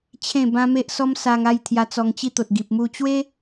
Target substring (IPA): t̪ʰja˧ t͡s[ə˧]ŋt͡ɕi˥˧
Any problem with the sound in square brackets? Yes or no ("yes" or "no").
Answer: yes